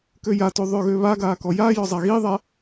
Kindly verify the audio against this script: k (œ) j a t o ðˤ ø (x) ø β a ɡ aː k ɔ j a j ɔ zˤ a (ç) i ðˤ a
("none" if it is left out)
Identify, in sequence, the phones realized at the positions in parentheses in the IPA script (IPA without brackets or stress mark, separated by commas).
ø, ɣ, ɣ